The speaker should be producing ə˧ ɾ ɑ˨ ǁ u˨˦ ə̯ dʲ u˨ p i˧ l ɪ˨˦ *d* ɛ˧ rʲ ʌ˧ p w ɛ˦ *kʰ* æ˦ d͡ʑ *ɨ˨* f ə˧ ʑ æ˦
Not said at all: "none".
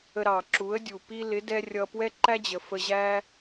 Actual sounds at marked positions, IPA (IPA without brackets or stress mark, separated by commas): d, ǃ, ə˨